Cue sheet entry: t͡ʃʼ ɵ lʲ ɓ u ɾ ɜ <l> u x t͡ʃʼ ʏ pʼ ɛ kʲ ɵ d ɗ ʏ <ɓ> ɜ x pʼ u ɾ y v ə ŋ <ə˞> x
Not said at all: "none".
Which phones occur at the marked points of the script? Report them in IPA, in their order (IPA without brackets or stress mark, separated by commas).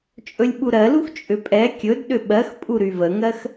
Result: l, ɓ, ɜ